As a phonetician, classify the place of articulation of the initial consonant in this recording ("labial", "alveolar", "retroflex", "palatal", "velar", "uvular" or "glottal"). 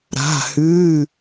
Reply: alveolar